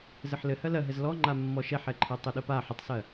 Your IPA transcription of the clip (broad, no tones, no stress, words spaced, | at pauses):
zɘħlɘ hɜlɜɦɘz lɔŋ͡ǃa mːɔʃɛħɛǃʰɜ tˤɘɗəpa ħətˤsɜ